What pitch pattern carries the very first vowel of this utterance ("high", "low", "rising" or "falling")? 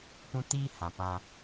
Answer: high